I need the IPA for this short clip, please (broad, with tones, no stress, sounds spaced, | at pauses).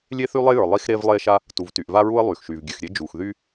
lʲ e˥ θ y˥ lˠ e˥ j ə˞˩ lˠ i˥ x ɾ e˥ v lˠ e˥ ʃ a˥ | t u˩ v t y˩ ʔ v a˥ ɹ u˥ ə̯ lˠ y˩ x ʃ y˩ v ɡʲ ʉ˩ x ɾʲ e˥ d͡ʒ u˩ x ð y˥